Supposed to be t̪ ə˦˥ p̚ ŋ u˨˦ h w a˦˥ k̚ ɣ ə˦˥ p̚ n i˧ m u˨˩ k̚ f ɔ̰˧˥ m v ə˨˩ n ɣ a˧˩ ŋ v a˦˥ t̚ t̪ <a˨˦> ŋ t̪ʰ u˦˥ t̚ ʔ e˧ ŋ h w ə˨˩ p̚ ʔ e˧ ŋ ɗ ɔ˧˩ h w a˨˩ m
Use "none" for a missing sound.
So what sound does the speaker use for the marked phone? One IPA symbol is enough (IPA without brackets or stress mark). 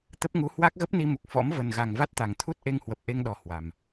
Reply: a˨˩